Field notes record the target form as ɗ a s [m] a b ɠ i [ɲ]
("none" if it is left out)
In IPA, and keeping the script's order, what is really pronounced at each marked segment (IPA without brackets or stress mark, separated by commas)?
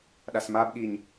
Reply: m, ɲ